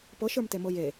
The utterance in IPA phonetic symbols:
pɤʃə˞mtemɤ je

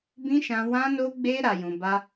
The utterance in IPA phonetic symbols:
bĩ˦ʃã˧ wã˧no˧ɡ͡be˧ ɾa˧jũ˧ba˦

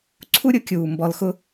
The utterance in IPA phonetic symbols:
ǀʰu˦ ɾʲʊ˦kʲuː˨ mbɔ˨lxʊ˦

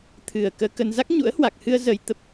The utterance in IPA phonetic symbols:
t̪ʰɨ˨˩ə̯ kəː˧kə˧n za˦˥k̚ɲṵ˧˥ə̯hwa˨˩k̚hɨ˧ə̯ zə˧jt̪ə˦˥p̚

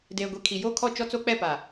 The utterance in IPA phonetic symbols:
deː˨ɡʷi˨kʰi˨ jo˦kʰɔ˦˨t͡ʃɔ˦ t͡so˦k͡pɛ˦˨ pa˨

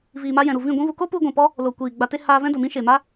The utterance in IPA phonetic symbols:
viː˨ma˧ jɛ̃˨ɾu˦˨ vĩ˦˨ɡʷĩ˦vu˧ ko˦pu˧ɡʷɛ̃˨pɔ˧ | lo˨ kʷiː˨ɡ͡ba˧ te˧ haː˧vɛ̃˦ do˨mĩ˦ʃe˨ma˦

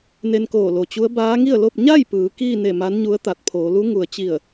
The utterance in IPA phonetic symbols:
ne˧nkoː˧˩lo˩t͡ɕu˧˥ə̯ baː˧˥ŋi˥˨ə̯lo˥˨p̚ ɲa˥˨j pɯː˩˧ kiː˥˨ne˧˩ ma˧˥nɲu˧˥ə̯ t̪a˧˩t̚pʰoː˩˧ lu˧˥ ŋu˩ə̯t͡ɕi˧˩ə̯

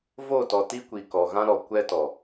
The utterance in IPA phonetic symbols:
vo˦˨tɔ˨ti˦kʷi˨ kɔ˨ɣã˦ɾɔ˨ kʷɛ˦ tɔ˨

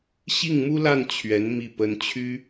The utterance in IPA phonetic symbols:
ɕi˥˩ŋmu˥la˥˩n t͡ɕʰɥɛ˧˥n mi˥˩pə˥n t͡ɕʰy˥

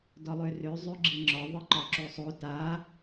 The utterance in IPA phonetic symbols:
dɒlˠørø zˤøɡ͡ǁiŋ͡ǁɒ ðˤɨǃɒǁosˤo ta

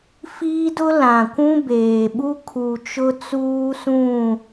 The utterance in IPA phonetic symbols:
fiː˦dʊ˦ lã˨kʷũ˦beː˨ɓu˦ kʰu˨t͡ʃʊ˦t͡suː˦sũ˦˨

